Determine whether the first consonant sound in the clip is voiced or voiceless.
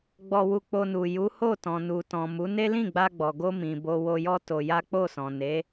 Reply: voiced